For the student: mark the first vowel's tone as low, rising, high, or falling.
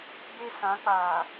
high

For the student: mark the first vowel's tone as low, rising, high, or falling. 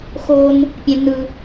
high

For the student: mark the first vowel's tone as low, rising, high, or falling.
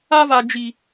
high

